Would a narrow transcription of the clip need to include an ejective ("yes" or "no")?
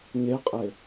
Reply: yes